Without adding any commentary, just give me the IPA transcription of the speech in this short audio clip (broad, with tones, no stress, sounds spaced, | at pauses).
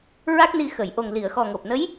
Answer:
ɹ a˦˥ k̚ n i˧ x ə˨˩˨ j ʔ o˨˩ ŋ l i˨˩˨ ə̯ x ɔ˨˩ ŋ o˨˩ p̚ n ə˧˥ j